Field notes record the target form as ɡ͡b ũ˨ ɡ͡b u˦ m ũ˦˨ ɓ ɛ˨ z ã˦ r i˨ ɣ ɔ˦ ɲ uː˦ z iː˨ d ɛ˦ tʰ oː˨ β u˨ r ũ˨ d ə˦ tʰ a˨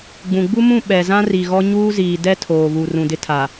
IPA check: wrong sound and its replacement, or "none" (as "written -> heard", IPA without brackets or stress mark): ə˦ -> ɪ˦